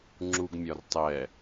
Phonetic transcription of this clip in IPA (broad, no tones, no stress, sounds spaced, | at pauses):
ŋ͡ǁ u ɡ mʲ ɒ r tˤ ɛ